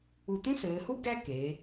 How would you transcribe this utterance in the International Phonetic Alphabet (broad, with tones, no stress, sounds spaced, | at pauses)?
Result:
u˧˩ t̪ ũ˥ s ɘː˩˧ h u˥ ɡ æ˥ k eː˩˧